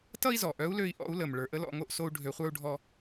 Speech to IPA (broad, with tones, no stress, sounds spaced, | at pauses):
t ʌ˥ i̯ z ɔ˩ ʔ œ˧˥ u̯ l ø˧ i̯ ʔ ɔ̰˧˥ u̯ l ə˩ m ɭ ə˞˩˧ ʔ ə˥ l ɔ̰˩˧ ŋ o˧ ʔ s o˧ u̯ ɖʱ ø˩˧ χʷ ə˞˧ u̯ ɖʱ ɔ˧